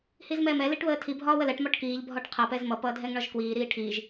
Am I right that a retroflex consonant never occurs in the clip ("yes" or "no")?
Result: no